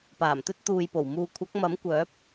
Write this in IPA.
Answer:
p aː˨˩ m t̪ ɵ˧ t̚ t̪ uː˨ j p o˨˩ w m uː˨ kʷʰ ɐ˨˥ k̚ m ɐ˨˥ m kʷ œː˨˥ p̚

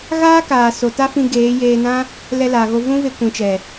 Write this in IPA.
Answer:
ɣ aː˦ k aː˨ s o˨ t a˦ f ĩ˧ ɡ eː˨˦ j eː˧ n ã˦ | l ɛ˧ l a˨ ɣ o˧ v ũ˦ v e˧ kʷ ĩ˨ t͡ʃ ɛ˨

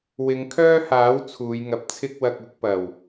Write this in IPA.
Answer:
w ɪ˨˧ ŋ kʰ œː˥ h aː˨˥ w t͡sʰ uː˨˧ j ŋ ɐ˨˥ p̚ t͡sʰ ɪ˥ k̚ w ɐ˧ k̚ ʊ˨˥ k̚ p ɐ˨˩ w

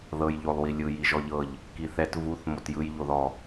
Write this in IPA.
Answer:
ð ɤ j ʎ o lˠ w i lʲ ɯ j i ʒ ɔ ʎ ɤ ʎ | k i θ ɛ t v u θ m o t j ɯ j ʎ o ð ɔ

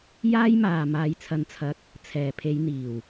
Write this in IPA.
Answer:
j aː˥ j m aː˨ m aː˧ j t͡sʰ ɐ˧ n t͡sʰ ɐ˧ k̚ | t͡sʰ ɛː˨˩ pʰ e˨˧ j n̪ iː˨˩ w

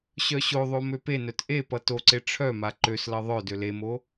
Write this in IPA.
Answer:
ɕ œ ɕ o ðˤ o m ø p e n œ t ʔ e p ʌ t o ǀ e ʈ͡ʂʰ œ m a ǃ ø s l ʌ ðˤ œ d ø l e m o

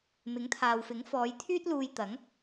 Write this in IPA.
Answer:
m ɪ˨˥ ŋ t̪ʰ aː˨ w f ɪ˨˥ ŋ f ɔː˨˧ j t̪ʰ yː˥ t̚ l uː˧ j t̪ ɐ˨˥ ŋ

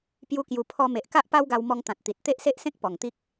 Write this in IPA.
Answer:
p j u˧ k j u˨˩ pʰ ɔ˧ m e˨ ʔ k a˦ ʔ p a˦ w ɡ a˧ w m ɔ˧ ŋ t̪ ã˨ t̚ t̪ i˨ t̚ t̪ e˦ ʔ s e˦ ʔ s ẽ˦ k̚ p ɔ˨˩ ŋ t̪ i˦ k̚

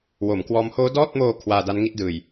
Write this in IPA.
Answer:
w o˩˦ m k w ɔː˦˥ m h oː˦˥ d ɔː˥˩ t̚ m oː˧ kʰ w aː˧ d a˦˥ n ŋ i˥˩ t̚ d ɯː˨˩ j

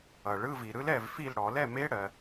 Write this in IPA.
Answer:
ʌ˨˩˦ ɭ ɯ˧˥˧ v i˨ ɾ ɯ˦˥ l ɛ˥˨ v f i˥˨ l ɽ ɔ˨˩˦ l ɛ˥˨ m e˧˥˧ ɽ ɜ˨

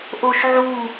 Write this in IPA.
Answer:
ʔ o ʃ ʕ u

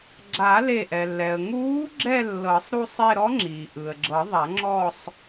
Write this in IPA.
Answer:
ɡ͡ǁ a˨˩˦ l e˧˩ ʔ ɛ˩ lː ɛ˩ ə̯ ŋ uː˧˥ ɡ͡ǁ ɛ˥˧ lː ɤ˨˩˦ sˤ ɾ u˥˧ sˤ e˥˧ ɾ ɔ˧˥ ŋ͡ǁ iː˩ ʔ ɯ˩ ə̯ ɡ͡ǁ ɤ˨˩˦ ðˤ a˨˩˦ ŋ͡ǁ ɔ˥˧ sˤ

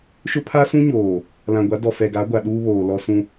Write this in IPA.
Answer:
ʃ ʊ˦ pʰ a˦ s ũ˦ ɲ oː˨ | l ã˨ ɡʷ a˨˦ d ɔ˨ f ɛ˨ ɡ a˨˦ ɡʷ a˨ ɗ uː˦ β oː˨ l ɔ˦ s ũ˦

